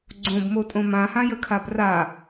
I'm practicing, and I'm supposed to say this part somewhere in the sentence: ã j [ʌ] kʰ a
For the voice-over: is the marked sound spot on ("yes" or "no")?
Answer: no